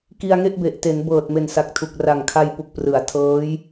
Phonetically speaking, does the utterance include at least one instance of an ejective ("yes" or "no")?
no